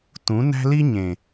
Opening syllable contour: rising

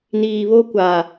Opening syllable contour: low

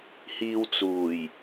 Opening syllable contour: low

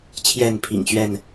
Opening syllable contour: falling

